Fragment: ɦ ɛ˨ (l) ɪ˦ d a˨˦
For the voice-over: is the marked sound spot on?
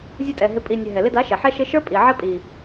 yes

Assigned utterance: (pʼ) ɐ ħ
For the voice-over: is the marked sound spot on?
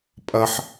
yes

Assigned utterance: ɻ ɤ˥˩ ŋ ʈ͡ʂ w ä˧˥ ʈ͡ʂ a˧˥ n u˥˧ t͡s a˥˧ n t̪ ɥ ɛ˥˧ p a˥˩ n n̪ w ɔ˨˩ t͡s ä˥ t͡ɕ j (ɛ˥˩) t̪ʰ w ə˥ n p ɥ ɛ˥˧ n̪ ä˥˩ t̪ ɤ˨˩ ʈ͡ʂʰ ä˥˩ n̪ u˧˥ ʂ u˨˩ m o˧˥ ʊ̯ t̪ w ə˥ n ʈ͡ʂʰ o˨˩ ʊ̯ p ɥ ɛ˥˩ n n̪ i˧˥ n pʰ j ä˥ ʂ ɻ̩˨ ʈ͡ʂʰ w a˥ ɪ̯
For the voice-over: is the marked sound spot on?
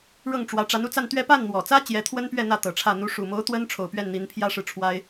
no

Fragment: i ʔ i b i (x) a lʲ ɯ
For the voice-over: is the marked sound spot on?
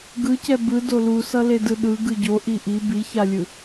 no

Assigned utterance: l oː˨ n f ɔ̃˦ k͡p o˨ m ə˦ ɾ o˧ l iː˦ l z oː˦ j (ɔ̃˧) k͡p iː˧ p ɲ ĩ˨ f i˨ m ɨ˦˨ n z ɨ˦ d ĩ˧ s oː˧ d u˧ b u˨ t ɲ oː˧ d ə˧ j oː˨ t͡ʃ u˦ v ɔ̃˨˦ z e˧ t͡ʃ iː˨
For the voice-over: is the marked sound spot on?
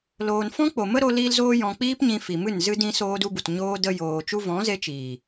yes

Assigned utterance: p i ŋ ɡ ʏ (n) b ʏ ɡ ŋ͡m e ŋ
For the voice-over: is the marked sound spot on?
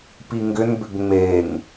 yes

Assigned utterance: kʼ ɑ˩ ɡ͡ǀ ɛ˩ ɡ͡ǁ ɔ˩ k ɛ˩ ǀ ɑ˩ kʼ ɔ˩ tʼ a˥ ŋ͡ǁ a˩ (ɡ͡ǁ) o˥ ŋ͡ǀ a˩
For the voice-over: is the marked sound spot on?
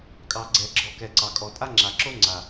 no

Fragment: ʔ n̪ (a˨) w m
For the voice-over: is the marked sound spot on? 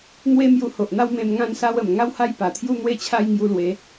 no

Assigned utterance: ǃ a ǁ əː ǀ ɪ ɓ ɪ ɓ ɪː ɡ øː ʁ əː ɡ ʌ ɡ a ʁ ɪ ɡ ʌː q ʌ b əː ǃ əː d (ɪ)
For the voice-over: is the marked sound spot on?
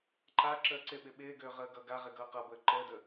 no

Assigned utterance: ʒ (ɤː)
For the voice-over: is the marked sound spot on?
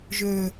no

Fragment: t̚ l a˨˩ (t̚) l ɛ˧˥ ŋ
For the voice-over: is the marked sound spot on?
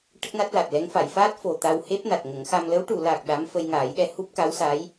yes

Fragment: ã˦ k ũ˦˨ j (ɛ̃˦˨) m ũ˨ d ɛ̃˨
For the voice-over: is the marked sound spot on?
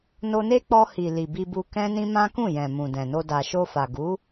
no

